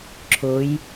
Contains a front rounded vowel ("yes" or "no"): no